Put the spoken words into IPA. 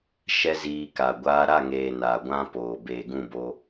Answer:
ʃ ɛ˦ z iː˧ k a˨ ɡʷ aː˧ ɾ a˦˨ ŋ eː˨ n a˨ ɡʷ ã˦ p oː˨ b eː˨ ɡ ũ˦˨ b o˧

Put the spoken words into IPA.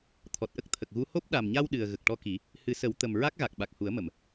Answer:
t̪ʰ ɔ˨˩ t̚ ʔ ə˦˥ k̚ t̪ʰ ə˨˩ k̚ ɣ u˧˥ h o˦˥ p̚ ɗ a˨˩ m ɲ a˧ w ɗ ɨ˨˩ ə̯ ɣ ə˨˩ k̚ ʈ ɔ˧ k i˨˩˦ | h ɨ˨˩˦ s ə˨˩˦ w t̪ ə˨˩ m ɹ a˦˥ k̚ ɣ a˨˩ k̚ ɓ a˨˩ k̚ h u˨˩˦ ə̯ m ə˨˩˨ m

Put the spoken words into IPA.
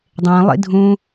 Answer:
dˤ ẽː lˠ ḭ dʱ ũː

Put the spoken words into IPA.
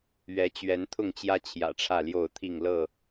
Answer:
ɥ ɛ˨˦ t͡ɕ ɥ ɛ˨˦ n t̪ʰ ʊ˥˨ ŋ t͡ɕ j ä˦ t͡ɕʰ j ä̰˨˩ ʈ͡ʂʰ ä˥˨ l j o˥˨ ʊ̯ t̪ʰ i˥˨ ŋ l ɤ˥˨

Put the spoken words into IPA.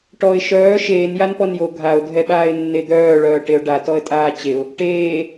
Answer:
ʈ ɔ ɪ̯ ʃ œː ʃ eː n j a n p ɔ n j o ɡʱ a ʊ̯ dʱ ɛ ɓ aː ɪ̯ nː e d̪ œː ɭ œː ʈ e ʊ̯ ɖ a t ɔ ə̯ tʼ aː t͡ɕ e ʊ̯ | ʈ eː

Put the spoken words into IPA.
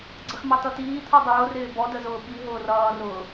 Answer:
ɡ͡ǀ ə x m ɑ t ʌ t iː t̪ʰ u dˤ ʊː r ɪː b ɔ d ə z ʊː ɓ i ɦ ʊː r ʌː r ʊː

